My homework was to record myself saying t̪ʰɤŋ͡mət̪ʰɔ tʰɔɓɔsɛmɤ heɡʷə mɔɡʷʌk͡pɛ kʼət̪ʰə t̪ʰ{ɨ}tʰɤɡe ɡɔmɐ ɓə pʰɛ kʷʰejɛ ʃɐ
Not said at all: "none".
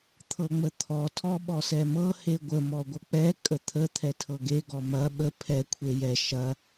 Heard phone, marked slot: ɛ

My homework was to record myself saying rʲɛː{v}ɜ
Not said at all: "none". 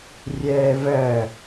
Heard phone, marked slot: v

